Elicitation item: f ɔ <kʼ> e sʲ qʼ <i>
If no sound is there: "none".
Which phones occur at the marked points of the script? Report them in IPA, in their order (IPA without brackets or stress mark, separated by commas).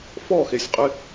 x, ɪ